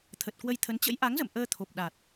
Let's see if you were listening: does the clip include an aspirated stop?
yes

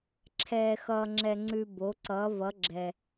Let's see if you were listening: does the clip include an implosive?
no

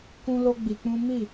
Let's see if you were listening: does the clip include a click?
no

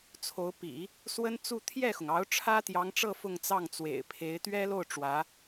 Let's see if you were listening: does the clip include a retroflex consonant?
yes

